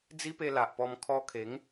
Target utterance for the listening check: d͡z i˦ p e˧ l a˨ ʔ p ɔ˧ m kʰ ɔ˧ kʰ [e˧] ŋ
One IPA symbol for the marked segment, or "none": e˨˦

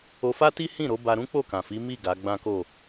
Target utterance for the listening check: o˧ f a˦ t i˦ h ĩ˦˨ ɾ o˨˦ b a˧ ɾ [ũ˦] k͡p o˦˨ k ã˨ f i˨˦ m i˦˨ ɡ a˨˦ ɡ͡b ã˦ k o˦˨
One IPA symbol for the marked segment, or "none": ũ˦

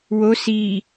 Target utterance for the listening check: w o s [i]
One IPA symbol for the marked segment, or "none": i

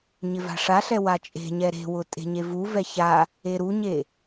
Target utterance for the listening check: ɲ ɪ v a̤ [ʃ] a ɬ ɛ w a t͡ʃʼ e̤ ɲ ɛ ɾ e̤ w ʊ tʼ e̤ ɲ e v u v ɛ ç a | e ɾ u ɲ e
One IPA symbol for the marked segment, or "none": ʂ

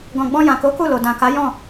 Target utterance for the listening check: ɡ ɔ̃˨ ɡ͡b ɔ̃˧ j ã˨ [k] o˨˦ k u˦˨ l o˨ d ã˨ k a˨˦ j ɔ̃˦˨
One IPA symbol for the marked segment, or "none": k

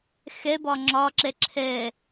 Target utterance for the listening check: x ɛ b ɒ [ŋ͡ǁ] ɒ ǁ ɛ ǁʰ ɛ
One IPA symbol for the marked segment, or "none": ŋ͡ǁ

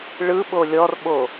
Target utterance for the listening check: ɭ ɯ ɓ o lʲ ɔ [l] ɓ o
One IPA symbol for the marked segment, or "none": r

